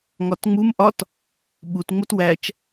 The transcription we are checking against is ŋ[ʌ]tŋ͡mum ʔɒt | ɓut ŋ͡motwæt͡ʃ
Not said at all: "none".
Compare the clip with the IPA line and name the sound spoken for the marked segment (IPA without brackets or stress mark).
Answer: ɒ